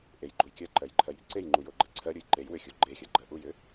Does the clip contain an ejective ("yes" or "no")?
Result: no